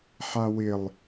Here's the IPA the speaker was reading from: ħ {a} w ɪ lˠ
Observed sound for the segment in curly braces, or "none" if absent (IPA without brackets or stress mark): a